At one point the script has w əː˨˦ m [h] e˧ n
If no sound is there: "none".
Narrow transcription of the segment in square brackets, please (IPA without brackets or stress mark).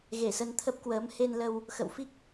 h